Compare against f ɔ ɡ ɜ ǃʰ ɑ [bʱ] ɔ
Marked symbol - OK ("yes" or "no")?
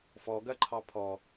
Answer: no